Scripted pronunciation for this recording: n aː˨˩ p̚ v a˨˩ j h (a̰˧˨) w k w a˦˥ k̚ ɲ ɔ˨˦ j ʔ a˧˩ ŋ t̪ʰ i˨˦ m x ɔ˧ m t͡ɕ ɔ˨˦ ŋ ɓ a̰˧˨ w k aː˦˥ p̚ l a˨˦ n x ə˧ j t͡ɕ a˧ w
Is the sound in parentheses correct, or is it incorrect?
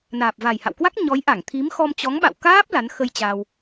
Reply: correct